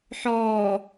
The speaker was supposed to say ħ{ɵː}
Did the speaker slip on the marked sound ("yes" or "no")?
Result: yes